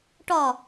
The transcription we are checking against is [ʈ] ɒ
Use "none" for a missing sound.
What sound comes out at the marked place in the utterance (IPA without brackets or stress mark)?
ʈ